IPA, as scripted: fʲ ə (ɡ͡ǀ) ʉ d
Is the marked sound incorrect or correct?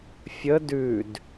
incorrect